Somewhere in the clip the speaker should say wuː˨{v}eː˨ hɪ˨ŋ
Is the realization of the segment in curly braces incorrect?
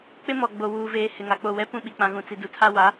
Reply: no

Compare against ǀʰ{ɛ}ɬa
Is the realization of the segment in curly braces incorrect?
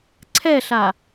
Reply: no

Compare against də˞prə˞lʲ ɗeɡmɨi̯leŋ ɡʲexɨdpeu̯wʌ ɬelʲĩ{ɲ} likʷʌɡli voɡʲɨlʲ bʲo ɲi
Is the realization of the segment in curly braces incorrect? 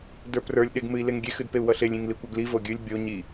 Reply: yes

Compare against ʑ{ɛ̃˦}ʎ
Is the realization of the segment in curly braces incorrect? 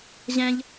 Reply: no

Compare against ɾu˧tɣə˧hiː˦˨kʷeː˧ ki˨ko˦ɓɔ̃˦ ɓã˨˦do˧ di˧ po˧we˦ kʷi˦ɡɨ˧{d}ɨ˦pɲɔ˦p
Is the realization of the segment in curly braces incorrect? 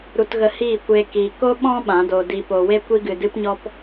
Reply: no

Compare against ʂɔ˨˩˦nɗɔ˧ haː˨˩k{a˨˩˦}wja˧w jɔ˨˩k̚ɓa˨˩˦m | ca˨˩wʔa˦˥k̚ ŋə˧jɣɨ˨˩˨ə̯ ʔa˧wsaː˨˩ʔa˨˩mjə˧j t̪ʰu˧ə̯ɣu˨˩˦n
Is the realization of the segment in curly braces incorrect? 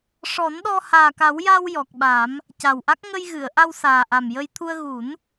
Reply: no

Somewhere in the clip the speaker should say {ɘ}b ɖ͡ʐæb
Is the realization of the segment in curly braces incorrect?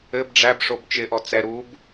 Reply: no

